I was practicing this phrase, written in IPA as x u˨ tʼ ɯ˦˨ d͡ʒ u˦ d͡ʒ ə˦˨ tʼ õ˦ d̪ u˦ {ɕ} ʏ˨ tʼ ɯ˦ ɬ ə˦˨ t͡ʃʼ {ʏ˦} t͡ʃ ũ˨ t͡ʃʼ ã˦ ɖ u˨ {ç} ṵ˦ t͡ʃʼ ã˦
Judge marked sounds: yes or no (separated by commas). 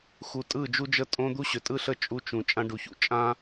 yes, no, yes